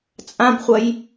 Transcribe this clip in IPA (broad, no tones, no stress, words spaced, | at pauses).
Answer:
t͡sʼãbχʷɐj